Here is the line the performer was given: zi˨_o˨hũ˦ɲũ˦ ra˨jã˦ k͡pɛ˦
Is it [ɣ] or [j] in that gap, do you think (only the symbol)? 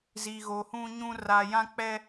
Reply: ɣ